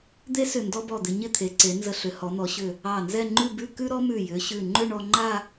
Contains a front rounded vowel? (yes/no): yes